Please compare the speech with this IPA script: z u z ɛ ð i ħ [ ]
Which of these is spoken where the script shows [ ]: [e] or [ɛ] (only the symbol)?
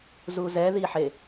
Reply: e